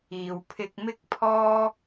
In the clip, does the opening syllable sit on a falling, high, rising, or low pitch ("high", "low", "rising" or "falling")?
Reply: low